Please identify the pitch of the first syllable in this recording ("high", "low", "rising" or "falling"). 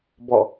falling